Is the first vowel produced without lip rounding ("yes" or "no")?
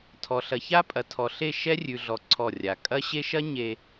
no